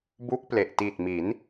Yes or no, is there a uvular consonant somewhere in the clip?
no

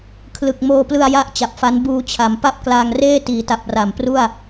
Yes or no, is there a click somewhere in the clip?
no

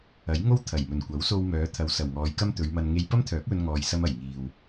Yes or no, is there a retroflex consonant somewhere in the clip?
no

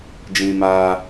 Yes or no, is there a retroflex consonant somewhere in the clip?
no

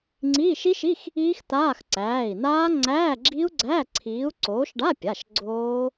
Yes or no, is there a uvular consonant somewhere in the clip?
no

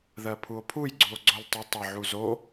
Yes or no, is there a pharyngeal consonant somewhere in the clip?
yes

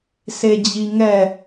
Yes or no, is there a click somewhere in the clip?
no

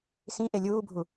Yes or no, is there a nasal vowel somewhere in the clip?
yes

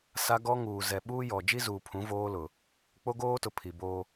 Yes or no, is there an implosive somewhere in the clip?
yes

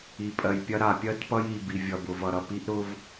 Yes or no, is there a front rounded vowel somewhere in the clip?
no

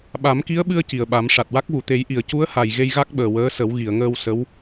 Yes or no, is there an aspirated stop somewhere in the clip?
no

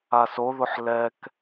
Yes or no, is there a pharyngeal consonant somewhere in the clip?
yes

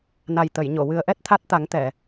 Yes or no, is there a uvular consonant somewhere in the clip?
no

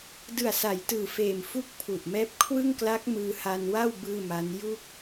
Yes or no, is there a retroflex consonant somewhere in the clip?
no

